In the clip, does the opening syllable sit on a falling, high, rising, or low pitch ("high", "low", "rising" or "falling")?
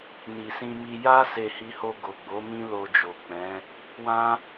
low